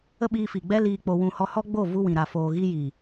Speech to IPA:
ə˦ ɓ iː˧ f i˨ ɡ͡b ɛ˦ l iː˧ k͡p o˧ w ũ˧ h ɔ˧ h ɔ˦ ɡ͡b o˦˨ v u˧ w ĩ˨ ɾ a˨ f oː˨ ɣ i˧ j i˨

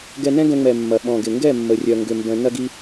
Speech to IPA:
ɡ ɛ˧ n ɛ̃˦ ɡ ɛ̃˧ ŋ͡m ɛ˨ mː ɐ˨ ɓ ɔ̃˨ ɡ ɪ˨ ŋ ɡ ɛ˦˨ mː ə˨ rʲ œ˨ ŋ ɡ ʏ˧ m b œ̃˧ n ɐ˧ ɡ i˧

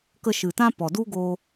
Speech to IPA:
k ə˧ ʃ ɨ˨ t ã˦ p ɔ˨ d u˦ ɡ o˧

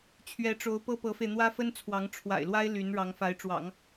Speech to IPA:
t͡ɕʰ ɥ ɛ˧˥ ʈ͡ʂ o˧˥ ʊ̯ p ɤ˥ p ɤ˧˥ f e˧ ɪ̯ n̪ w ä˥ f ə˥ n t͡sʰ w ɑ˧˥ ŋ ʈ͡ʂʰ w a̰˨˩ ɪ̯ l w a˥ ɪ̯ l y˧˥ n ɻ ɑ˧˥ ŋ f a˧˥ ɪ̯ ʈ͡ʂ w ɑ̰˨˩˦ ŋ

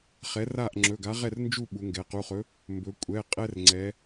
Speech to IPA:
χ ɛ˨˥ r a˥˨ ʔ ŋ͡ǁ ɵ˩˧˩ ɡ a˨˥ ʁ ɛ˥˨ r n d͡ʒ u˥˨ ɓ u˩˧ ŋ ɡ ɛ˩˧ q u˩˧˩ χ ɵ˨˥ | m b ɵ˩˧ kʷʼ ɛ˩˧˩ qʼ ɛ˦ r ŋ͡ǀ ɛ˩˧

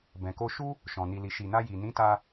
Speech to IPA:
b ɛ̃˨ k o˧ ʃ u˦ | ʃ ɔ̃˨ n i˨ l i˨ ʃ i˨ n a˧ j i˨ n ĩ˨˦ t a˧

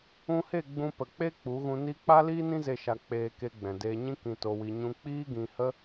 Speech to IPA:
ũ˧ h e˦˨ ɡ͡b ũ˧ p ə˨ k͡p e˦ k͡p u˨˦ ɣ ũ˧ n i˦ k͡p a˦ l iː˦ n ĩ˦ z e˧ ʃ a˧ k͡p eː˧ k e˧ ɡ͡b ɛ̃˨ d eː˧ ɲ ĩ˦ k ĩ˧ t o˧ w i˧ ɲ ũ˧ k͡p iː˦ ɡ ĩ˧ h ə˦

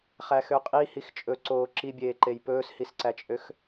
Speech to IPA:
χ æ x ø qʼ i h i x t͡ʃʼ ɵ ǀ oː ǁ i bʲ eː ǃ e j p ɵː s h i s ǀ æ t͡ʃʼ ø x

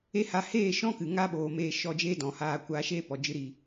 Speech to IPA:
e˦ h a˧ h eː˦˨ ʃ ɔ̃˦ k ɨ˨ ŋ a˦ ɓ oː˨ m eː˧ ʃ ɔ˦˨ d͡ʒ eː˦ d ɔ̃˨ h aː˧ kʷ aː˧ ʃ eː˦ p ɔ˨ d͡ʒ ɨ˦ ɾ iː˧

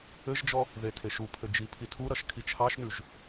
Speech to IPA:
ɘ ʒ d͡ʒ ɔ | ð e tʰ e ʃ u pʰ ɘ d͡ʒ i pʰ i tʰ u ɾ ʌ ʃ kʰ i t͡ʃʰ ɑ ʃ n ʉ ʒ

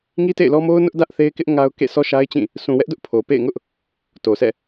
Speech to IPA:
ŋ i˦ t ḛ˦˨ ɪ̯ l ɔ˦ m o˦ ʊ̯ n ʊ˦ ʔ d ä˦ ʔ θ e˦ ɪ̯ k ɪ˦ ʔ ŋ a˦ ʊ̯ k ḛ˦˨ s ɔ˦ ʃ a˦ ɪ̯ t͡ɕ ĩ˦˨ | s ũ˨ w ɛ˦ ʔ d ʊ˦ ʔ pʰ o˨ p ḛ˦˨ ɪ̯ ŋ ʊ˦ ʔ | t o˨ s ɛ̰˦˨

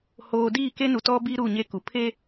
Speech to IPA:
h oː˨ d iː˦˨ k e˦ n u˨ t ɔ˦ b i˦ ɾ u˦˨ ɲ e˦ k u˨ pʰ e˦

